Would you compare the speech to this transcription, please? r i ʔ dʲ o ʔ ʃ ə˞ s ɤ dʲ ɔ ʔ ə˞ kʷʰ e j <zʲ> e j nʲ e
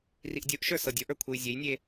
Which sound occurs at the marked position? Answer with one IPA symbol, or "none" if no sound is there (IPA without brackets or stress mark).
zʲ